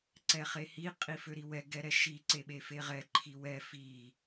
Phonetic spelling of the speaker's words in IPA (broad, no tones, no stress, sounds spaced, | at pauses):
ǀ ɛ χ e h i qʼ i f ø ɾ i w ɛ ɡ ɛ ɾ ɛ ʃ i ǀ e ɓ e f e ʁ ɛ ǃʰ i w ɛ f i